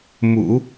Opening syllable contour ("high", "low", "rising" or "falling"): low